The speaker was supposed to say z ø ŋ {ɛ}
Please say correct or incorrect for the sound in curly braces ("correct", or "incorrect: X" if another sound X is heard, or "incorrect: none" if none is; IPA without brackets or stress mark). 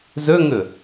incorrect: ʏ